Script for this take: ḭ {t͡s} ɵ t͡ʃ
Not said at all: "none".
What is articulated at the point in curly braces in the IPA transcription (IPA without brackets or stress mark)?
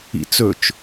t͡s